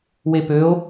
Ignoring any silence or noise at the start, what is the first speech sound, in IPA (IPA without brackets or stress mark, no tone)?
w